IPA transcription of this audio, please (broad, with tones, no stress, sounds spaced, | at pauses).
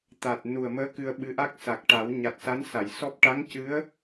t̪ a˨˩ t̚ n u˨˩ ə̯ m əː˧˥ k ɨ˧ ə̯ ɓ ɨ˧˥ ʔ a˦˥ k̚ s a˨˩ k̚ ʈ a˨˩˦ w ɲ a˨˩ t̚ s a˧˥ n s a˨˩˨ j s ɔ˦˥ p̚ ʈ a˧˥ ŋ c ɨ˧˥ ə̯